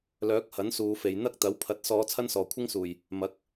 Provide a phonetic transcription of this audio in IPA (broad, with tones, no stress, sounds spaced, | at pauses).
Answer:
l œː˨˥ k̚ h ɐ˨˥ n s uː˨˧ f e˨ j n̪ ɐ˥ k̚ t̪ ɐ˨˥ w pʰ ɐ˨˥ t̚ s ɔː˨˧ t͡sʰ ɐ˥ n s ɔː˨ kʷʰ ɪ˥ ŋ s uː˨ j | m ɐ˨˥ k̚